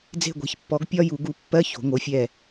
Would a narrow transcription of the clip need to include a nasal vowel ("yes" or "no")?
no